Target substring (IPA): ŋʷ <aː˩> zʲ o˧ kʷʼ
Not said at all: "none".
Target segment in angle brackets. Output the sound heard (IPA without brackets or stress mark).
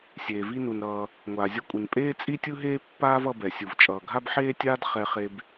aː˩